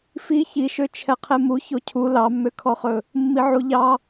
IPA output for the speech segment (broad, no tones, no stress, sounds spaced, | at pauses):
f i ç i ʃ ø t͡ʃʰ ɛ qʰ e m u ç o cʰ u l ɑ mː ø kʰ ɔ χ ɵ | mː i ʕ u ʎ ɑ